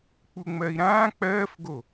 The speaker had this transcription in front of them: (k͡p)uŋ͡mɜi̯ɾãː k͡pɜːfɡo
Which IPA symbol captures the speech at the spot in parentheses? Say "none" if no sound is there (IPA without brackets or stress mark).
k͡p